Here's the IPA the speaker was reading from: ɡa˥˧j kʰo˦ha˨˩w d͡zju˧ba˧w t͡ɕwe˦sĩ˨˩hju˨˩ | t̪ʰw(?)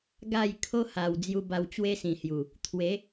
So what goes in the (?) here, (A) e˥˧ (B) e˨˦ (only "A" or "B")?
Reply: B